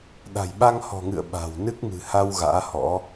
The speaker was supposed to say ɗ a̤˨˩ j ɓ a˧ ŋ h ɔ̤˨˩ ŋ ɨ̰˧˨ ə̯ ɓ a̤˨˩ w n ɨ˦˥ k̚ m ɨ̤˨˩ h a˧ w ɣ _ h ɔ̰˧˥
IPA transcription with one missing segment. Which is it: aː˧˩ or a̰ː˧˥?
a̰ː˧˥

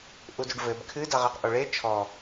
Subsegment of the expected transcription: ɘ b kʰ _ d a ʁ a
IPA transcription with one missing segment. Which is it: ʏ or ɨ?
ɨ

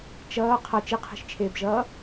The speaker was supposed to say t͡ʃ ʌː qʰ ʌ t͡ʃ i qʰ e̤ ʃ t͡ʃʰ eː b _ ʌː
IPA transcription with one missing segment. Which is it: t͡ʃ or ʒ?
ʒ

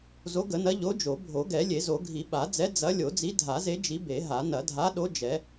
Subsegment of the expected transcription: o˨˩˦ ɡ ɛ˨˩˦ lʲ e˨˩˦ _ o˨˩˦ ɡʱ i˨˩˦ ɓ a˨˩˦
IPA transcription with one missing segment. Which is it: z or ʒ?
z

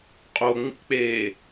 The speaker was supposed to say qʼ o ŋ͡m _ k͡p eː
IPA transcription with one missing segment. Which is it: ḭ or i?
ḭ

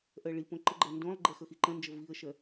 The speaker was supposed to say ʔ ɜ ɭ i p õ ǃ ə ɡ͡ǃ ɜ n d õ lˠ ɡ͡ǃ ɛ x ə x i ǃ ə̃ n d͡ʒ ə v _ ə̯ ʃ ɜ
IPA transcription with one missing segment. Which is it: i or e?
i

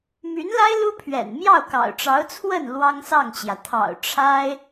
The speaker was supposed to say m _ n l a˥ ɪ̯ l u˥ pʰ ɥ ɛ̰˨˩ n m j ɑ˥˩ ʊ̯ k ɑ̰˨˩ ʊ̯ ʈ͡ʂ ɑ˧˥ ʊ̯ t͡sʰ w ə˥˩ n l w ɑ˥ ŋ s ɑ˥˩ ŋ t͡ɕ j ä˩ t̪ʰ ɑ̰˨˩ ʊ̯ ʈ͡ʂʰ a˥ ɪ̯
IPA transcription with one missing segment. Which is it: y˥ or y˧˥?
y˧˥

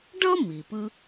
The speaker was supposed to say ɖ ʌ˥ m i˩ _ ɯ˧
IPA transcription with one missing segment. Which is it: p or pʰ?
p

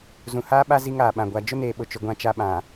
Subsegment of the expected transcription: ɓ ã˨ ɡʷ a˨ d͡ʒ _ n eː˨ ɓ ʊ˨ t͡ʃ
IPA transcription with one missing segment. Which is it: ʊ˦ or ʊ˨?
ʊ˦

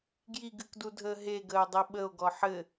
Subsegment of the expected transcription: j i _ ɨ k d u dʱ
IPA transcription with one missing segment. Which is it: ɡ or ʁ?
ɡ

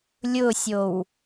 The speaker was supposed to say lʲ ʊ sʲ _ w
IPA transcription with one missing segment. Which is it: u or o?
o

